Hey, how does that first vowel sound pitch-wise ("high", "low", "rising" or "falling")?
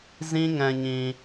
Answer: high